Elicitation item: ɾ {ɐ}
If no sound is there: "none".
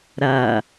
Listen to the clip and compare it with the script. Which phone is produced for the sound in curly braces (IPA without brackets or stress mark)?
ɐ